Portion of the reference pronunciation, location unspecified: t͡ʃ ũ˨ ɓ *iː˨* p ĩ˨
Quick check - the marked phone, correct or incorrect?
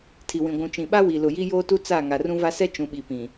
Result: incorrect